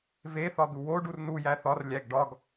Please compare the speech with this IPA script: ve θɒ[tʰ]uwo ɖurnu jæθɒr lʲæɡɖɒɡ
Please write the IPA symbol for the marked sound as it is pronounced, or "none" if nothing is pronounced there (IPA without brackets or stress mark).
d̪